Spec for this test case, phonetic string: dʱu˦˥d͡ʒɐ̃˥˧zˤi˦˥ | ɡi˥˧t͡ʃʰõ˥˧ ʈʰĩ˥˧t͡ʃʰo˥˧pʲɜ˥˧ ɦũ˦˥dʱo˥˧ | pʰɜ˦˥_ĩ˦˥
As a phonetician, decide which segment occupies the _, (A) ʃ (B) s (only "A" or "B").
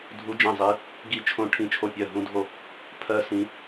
B